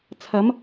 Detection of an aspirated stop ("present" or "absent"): present